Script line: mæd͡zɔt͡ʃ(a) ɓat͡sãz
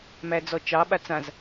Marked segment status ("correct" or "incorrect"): incorrect